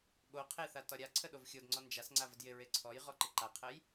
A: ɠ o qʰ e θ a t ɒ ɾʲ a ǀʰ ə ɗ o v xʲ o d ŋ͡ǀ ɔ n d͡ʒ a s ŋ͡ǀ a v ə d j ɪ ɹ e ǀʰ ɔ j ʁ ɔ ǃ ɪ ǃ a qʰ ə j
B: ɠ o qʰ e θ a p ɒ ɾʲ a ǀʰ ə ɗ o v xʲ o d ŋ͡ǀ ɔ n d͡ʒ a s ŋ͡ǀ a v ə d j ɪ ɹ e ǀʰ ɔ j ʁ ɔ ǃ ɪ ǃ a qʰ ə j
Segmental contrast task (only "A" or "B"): A